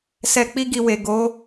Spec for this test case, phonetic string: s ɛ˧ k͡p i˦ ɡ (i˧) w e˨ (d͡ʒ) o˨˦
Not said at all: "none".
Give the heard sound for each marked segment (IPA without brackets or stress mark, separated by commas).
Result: i˧, ɡ